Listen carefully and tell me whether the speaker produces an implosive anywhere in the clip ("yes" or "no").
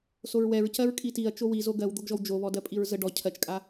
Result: no